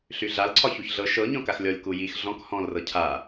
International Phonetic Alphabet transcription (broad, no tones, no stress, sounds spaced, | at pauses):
ɬ y ɮ a l ǀʰ ɒ ç u ç ɮ ɤ ʃ ɤ ɲ ɔ̃ k a x lʲ ɔ lʲ k u j i x ɮ ɔ̃ k h ɔ̃ l r ɤ cʰ a